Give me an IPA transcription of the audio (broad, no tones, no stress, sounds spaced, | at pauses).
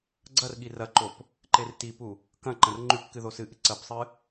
ɡ͡ǀ ɐ r ɠ i r ɐ ǃ o p | ǃ e r t i p u | k ɐ̃ ǃ ɐ̃ r ŋ͡ǃ ʉ p k ɨ ð o s ɨ ʔ ɨ ǀ ɐ p sˤ ɨ